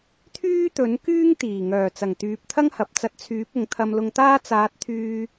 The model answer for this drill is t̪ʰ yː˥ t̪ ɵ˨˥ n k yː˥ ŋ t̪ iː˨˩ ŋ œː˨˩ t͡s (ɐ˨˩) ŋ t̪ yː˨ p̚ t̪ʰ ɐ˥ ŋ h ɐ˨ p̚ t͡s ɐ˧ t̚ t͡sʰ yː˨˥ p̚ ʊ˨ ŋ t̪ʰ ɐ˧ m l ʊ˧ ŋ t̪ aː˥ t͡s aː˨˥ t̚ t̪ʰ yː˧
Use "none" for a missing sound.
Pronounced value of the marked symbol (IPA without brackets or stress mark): ɐ˨˩